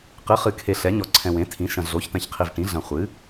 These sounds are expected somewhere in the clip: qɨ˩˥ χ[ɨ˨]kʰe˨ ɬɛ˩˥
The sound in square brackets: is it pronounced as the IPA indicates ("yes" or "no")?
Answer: yes